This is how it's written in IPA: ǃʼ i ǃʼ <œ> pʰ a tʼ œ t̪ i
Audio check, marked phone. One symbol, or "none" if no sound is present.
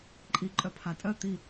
œ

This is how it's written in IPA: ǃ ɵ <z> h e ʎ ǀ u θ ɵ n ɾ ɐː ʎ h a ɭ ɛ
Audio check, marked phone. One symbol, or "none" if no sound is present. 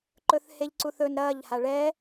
θ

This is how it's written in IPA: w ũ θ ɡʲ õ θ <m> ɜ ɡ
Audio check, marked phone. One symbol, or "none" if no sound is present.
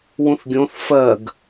f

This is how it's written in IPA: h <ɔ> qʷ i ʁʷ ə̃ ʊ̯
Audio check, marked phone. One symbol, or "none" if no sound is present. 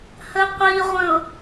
ə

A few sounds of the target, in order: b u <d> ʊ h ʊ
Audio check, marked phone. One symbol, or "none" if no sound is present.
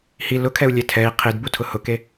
tʰ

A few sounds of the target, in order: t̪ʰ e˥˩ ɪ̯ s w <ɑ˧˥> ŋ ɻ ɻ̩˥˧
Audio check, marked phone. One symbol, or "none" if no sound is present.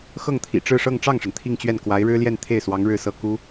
ɑ˧˥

